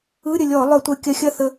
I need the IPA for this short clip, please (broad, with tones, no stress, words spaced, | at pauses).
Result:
ɯ˧˥˧ ɾʲə˧˩ lʲɔ˧˩˧lˠœ˧˩˧ tʷɐ˧˩kʲɐ˧˩xʲɐ˥˩ θə˧˩